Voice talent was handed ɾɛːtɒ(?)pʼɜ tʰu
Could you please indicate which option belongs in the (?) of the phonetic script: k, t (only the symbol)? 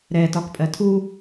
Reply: k